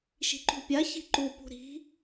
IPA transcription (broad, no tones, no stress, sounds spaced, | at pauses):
ʃ i̤ ǃ ṳ pʲ a ç i̤ ǃ u p ṳ ɾ i̤